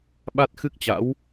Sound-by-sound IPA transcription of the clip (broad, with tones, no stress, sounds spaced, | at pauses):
ɓ a˦˥ t̚ x ɨ˦˥ k̚ t͡ɕ a̰˧˥ w